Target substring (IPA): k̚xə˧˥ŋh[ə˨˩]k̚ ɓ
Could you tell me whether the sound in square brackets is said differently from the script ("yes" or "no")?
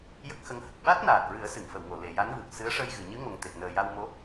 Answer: no